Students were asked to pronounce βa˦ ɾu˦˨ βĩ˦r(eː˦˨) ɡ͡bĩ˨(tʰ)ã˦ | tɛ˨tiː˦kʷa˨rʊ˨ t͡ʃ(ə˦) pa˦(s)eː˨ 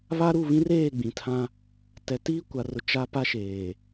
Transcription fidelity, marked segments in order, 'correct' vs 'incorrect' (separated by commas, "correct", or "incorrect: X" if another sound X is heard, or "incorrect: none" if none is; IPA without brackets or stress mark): correct, correct, incorrect: a˦, incorrect: ʃ